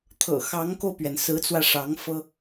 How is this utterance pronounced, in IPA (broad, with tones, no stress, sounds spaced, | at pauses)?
t̪ʰ ɤ̰˨˩ x ɑ˧˥ ŋ k o˧ ʊ̯ p ɥ ɛ˩ n s ɹ̩˧˥ t͡s w ä˧ ʂ ɑ˧˥ ŋ f ɤ˥